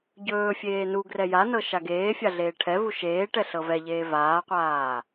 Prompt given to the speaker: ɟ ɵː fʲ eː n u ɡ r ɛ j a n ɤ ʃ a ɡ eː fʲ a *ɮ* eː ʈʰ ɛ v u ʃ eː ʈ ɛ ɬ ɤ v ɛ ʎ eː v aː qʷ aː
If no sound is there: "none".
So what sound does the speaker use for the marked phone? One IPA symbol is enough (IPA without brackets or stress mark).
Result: ɮ